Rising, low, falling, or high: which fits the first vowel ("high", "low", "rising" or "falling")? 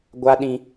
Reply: high